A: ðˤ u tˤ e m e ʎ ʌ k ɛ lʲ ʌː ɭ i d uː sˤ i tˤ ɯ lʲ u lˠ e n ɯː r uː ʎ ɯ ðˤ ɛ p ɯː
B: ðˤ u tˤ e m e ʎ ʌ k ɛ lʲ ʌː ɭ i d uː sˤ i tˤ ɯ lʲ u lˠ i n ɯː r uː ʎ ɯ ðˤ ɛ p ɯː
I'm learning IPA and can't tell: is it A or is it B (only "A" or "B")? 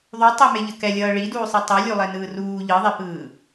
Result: A